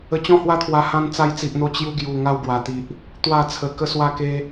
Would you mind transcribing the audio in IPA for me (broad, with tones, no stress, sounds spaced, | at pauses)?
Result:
ə˧ t͡ɕ ɔ̃˥˧ h w a˦ t̪ʰ w a˧ h ã˧ n t͡s a˧ j t͡s i˨ ʔ n̪ o˧ t͡ɕ j u˧ ɡ j u˨˩ ŋ a˦ w ɡ w a˨˩ t̪ i˨ ʔ | t̪ w a˥˧ t͡sʰ ə˧ k ə˦ s w a˦ k e˦